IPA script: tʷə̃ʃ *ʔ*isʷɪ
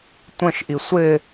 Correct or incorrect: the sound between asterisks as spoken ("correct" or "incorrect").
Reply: correct